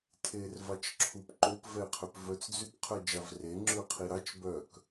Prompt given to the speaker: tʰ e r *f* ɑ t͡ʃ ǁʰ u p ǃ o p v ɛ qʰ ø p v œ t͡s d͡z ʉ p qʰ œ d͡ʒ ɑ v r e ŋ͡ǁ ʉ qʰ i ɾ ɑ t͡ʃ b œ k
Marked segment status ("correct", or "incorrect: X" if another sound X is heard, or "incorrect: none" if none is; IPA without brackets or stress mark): incorrect: v